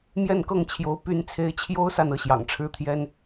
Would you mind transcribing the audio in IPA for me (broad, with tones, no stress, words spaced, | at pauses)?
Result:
mjɛ˥˨nkɤ˥˨ŋt͡ɕʰjo˨˦ʊ̯ py˨˦n t͡sʰe˨˦ɪ̯t͡ɕʰjo˦ʊ̯sa˨n ɤ˨˦ɕjɑ̰˨˩ŋʈ͡ʂʰɻ̩˦t̪ʰjɛ˦n